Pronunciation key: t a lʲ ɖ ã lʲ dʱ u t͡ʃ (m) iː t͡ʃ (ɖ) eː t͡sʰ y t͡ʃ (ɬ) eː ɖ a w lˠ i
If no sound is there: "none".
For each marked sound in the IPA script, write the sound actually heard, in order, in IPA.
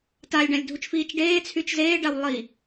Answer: f, ɖ, z

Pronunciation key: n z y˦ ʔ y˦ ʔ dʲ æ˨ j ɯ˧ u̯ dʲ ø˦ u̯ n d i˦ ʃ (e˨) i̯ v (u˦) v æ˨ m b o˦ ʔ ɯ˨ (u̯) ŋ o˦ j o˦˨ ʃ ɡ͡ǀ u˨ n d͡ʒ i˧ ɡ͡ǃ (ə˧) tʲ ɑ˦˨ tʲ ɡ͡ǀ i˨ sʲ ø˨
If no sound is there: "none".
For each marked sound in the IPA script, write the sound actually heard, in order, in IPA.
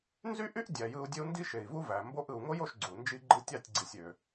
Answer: e˨, u˦, u̯, ɯ˧

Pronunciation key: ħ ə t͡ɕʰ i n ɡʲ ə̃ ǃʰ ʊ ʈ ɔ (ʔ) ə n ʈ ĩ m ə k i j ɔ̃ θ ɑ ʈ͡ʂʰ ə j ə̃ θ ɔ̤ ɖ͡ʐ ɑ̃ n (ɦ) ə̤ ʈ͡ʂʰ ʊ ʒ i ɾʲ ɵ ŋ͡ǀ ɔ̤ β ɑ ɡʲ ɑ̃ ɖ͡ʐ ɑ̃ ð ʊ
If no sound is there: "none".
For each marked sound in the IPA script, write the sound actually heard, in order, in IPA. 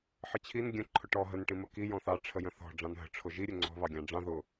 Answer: ɦ, ɦ

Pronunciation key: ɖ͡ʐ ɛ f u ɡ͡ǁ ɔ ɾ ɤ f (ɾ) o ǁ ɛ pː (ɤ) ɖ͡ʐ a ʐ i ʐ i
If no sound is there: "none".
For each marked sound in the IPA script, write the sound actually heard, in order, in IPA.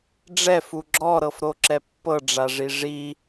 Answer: ɾ, ɤ

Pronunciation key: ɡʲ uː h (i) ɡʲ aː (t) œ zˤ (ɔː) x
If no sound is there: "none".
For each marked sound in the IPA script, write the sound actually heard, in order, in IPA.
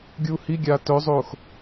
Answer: i, t, oː

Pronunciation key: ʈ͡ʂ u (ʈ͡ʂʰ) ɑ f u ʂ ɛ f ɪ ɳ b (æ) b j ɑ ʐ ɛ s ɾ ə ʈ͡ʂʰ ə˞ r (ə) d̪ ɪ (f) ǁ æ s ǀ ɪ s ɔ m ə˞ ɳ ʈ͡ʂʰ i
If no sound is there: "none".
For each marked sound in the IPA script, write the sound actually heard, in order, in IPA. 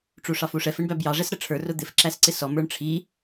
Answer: ʂ, æ, ʊ, f

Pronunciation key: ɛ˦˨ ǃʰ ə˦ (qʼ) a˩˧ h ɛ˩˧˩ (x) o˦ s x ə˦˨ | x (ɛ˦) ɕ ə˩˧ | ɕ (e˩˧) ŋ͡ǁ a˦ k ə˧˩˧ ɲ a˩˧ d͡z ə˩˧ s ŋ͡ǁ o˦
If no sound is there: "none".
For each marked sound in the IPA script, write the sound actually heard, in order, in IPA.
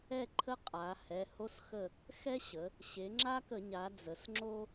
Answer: qʼ, h, ɛ˦, e˩˧

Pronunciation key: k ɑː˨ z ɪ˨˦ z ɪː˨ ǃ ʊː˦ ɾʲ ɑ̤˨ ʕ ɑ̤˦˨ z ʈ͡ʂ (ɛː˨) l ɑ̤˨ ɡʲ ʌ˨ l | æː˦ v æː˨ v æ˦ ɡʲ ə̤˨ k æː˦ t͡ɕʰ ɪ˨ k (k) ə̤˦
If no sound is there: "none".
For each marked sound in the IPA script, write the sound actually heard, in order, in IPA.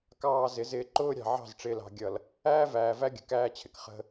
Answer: ɪː˨, χ

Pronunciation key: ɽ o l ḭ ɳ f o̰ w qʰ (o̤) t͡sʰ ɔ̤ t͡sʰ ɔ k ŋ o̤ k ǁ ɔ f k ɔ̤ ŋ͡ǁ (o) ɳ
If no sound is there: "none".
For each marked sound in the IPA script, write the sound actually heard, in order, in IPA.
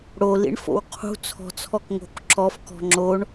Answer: ṳ, o

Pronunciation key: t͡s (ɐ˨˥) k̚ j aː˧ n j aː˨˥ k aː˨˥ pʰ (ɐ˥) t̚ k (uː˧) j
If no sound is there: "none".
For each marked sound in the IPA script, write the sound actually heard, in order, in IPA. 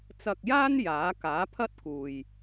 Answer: ɐ˨, ɐ˥, uː˨

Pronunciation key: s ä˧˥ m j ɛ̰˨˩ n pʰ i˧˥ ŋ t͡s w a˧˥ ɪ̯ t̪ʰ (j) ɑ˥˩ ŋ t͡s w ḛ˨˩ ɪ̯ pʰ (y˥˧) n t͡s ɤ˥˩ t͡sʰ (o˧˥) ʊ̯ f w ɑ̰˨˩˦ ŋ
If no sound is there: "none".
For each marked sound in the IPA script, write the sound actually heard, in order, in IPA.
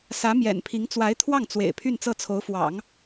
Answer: w, y˥˧, o˧˥

